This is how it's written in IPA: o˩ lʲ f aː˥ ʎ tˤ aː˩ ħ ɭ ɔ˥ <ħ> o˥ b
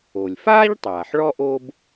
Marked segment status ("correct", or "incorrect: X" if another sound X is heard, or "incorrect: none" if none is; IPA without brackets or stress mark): incorrect: ʔ